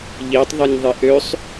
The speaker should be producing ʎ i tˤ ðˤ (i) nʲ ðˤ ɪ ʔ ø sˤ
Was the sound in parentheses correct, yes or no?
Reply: yes